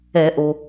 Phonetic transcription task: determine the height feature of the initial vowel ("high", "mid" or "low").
mid